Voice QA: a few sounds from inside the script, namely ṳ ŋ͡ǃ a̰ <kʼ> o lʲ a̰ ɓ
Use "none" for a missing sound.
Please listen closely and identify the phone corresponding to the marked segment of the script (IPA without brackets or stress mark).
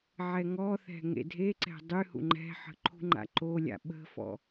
ǃ